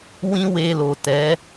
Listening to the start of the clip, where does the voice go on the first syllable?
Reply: high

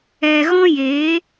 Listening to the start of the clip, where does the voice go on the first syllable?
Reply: low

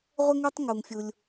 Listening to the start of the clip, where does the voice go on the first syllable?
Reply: high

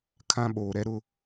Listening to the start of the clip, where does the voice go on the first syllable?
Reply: high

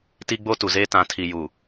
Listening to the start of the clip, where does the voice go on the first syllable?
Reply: high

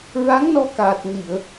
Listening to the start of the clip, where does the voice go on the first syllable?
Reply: rising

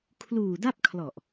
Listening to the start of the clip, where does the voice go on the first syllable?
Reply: low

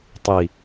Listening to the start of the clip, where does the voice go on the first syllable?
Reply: low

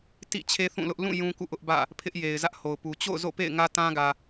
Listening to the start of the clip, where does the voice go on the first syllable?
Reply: falling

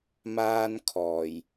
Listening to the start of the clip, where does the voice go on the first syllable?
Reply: high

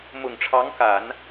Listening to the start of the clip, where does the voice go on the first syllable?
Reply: low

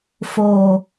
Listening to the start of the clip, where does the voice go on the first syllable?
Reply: low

